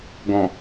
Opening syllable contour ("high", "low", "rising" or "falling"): low